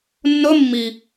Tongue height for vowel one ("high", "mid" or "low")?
mid